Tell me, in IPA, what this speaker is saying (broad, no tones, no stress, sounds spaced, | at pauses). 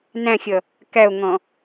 n æ̃ xʲ ʌ | k æ o̯ ŋ ɔ̃